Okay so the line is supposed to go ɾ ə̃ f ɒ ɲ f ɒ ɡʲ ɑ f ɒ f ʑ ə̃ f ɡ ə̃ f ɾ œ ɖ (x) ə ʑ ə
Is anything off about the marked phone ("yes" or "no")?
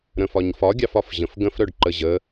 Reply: yes